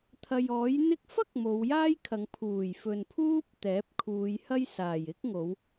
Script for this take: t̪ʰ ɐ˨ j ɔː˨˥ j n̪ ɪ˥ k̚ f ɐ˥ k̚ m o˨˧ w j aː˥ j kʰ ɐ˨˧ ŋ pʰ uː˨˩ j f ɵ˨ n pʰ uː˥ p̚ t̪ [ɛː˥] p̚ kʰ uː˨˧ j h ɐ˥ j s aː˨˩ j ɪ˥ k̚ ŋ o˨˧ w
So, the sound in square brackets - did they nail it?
no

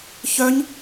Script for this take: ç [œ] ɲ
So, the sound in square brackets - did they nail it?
yes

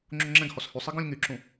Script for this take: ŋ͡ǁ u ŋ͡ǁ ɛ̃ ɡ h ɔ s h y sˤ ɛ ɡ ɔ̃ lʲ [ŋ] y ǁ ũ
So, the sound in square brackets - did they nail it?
yes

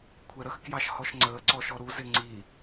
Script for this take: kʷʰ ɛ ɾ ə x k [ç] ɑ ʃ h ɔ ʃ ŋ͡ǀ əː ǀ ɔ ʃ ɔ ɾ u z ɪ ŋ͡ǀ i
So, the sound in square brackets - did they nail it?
no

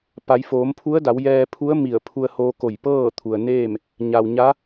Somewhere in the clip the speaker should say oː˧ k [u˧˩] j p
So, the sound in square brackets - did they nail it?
no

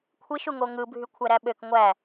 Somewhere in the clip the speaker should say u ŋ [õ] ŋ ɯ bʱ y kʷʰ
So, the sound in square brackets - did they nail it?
no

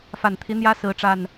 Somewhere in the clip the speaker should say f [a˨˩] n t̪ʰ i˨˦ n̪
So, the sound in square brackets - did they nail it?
yes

